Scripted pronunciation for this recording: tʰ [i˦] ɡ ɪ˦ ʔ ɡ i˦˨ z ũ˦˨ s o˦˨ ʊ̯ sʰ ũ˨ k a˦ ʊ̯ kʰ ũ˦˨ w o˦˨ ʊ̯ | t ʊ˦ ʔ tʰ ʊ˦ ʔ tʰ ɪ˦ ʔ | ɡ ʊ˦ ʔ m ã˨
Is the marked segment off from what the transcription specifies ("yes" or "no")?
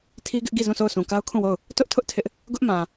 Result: no